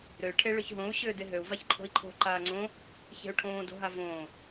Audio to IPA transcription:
ɾø ʈʰeɭʏçɦõu̯ ɕʏːdeɦøu̯ vaçǃʰo̤i̯ǃʰo̤ ǃaːŋ͡ǀõ | çe̤u̯ʈʰõː do̤ɦavõː

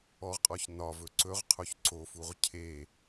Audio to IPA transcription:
ɔʁqʼɔç nɒvɵ ǀɵʁqʰoç ǀofuʁ cʰe

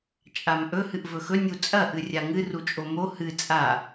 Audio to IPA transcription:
t͡ʃʼamʔɵ hɨʔvɵxɵ nʲut͡sʼɐ ʔɨrʲaŋɨ rut͡ʃʼomo hɨ t͡sʼa

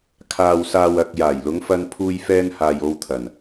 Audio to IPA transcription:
kʰaː˨wsaː˨wɐ˨k̚ jaː˨˩jlʊ˨˧ŋfɐ˧n pʰuː˧jfɛː˧nhaː˨j o˧wt̪ʰɐ˨˩n

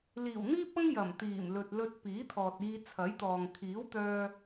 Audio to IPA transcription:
liː˨˩wn̪iː˥p̚ɐ˥ŋ jɐ˨˩mt̪iː˨˩mlɵ˨t̚ lɵ˧t̚piː˨˥t̪ʰɔː˨t̚ iː˧ t͡sʰɐ˨˥jt̪ɔː˨ŋ kʰiː˨˥wt̪œː˧

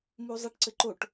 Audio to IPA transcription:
muzˤeʈǀɘǃoʈ

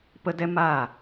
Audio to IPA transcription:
pə˦dɛ˦ maː˦˨

